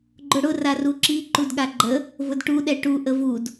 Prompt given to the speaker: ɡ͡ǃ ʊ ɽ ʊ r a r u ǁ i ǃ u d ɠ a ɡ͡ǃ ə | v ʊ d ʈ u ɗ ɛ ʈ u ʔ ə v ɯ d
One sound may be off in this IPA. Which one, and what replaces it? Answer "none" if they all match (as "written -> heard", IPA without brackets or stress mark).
ɯ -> u